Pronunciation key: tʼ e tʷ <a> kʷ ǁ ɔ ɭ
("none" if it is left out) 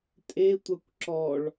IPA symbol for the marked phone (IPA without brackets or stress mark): a